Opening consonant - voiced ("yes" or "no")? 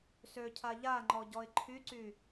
no